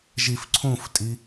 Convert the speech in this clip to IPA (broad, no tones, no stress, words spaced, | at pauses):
ʒifǀʰũftʼi